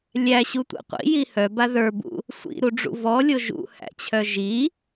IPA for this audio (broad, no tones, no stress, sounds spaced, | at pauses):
lʲ æ ɕ u tʷ ḭ qʷ ḭ j i h œ b a ð ə˞ b ṵ | sʷ ḭ ɾ u ɖ͡ʐ ṵ v ɔ lʲ o ʒ ṵ h æ̰ t͡ɕʰ œ ʒ i